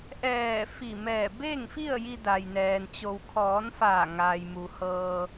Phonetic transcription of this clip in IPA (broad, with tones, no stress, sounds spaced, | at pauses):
ʔ ɛː˧˩ f i˧˩ m ɛː˧˩ b e˥˨ ŋ f i˥˨ ə̯ j i˧ d a˩ j n ɛː˩ n t͡ɕ o˩ w kʰ ɔː˩˧ n f aː˧˩ ŋ aː˩ j m u˩ h ɤː˧